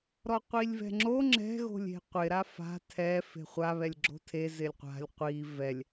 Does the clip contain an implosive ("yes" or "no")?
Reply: no